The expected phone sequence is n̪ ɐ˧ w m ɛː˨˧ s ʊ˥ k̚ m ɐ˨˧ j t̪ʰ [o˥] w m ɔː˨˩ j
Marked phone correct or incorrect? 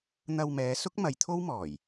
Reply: correct